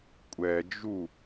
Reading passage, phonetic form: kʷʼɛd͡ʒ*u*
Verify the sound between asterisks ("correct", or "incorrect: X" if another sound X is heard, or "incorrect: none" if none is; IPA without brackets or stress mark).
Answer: correct